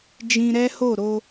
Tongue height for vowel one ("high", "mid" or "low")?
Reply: high